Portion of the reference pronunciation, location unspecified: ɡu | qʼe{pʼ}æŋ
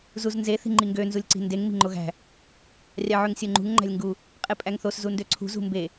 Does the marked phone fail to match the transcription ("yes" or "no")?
no